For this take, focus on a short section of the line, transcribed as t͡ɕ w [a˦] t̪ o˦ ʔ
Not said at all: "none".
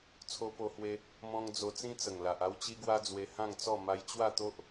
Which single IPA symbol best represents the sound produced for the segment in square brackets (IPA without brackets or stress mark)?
a˥˧